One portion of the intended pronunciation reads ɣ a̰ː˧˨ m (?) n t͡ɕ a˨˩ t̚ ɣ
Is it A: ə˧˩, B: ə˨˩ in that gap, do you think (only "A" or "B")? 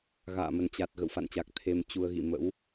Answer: B